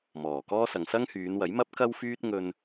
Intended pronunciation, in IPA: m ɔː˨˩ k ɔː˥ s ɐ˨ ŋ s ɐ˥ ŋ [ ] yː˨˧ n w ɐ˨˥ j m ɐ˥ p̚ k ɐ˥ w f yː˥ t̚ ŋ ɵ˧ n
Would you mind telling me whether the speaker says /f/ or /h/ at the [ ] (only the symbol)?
h